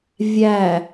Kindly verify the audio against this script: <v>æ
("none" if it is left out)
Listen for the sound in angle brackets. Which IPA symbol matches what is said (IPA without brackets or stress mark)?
vʲ